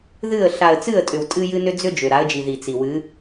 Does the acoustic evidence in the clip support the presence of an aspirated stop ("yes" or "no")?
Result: no